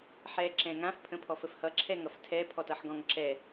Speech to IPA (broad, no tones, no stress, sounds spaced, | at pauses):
ħ ɛ ǁ ɛ̃ ŋ ã f pʰ ə̃ pʰ ɔ f ə f h ʌ ǁʰ ɛ ŋ ʌ f tʰ ɛ pʰ ɔ t ʌ ħ ɡ ɔ̃ ŋ ǁ ɛ